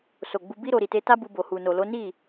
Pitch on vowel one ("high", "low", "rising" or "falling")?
low